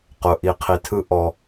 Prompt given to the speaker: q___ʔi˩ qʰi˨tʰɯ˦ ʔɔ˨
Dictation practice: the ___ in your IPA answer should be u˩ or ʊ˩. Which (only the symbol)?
ʊ˩